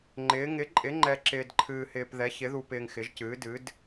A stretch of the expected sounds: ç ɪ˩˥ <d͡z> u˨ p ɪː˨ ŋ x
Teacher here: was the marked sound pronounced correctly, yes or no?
no